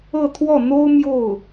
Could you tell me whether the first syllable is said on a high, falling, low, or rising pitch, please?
falling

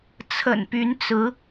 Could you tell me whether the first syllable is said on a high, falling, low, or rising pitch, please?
low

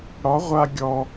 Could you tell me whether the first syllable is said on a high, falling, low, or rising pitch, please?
rising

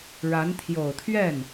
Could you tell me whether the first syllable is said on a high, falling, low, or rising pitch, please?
rising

